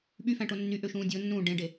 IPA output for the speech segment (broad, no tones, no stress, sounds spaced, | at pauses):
ɓ y f æ̃ ʈ o nː y ʔ ø ʃ ũː dʲ o nː ũː ɖ ẽ ɖ e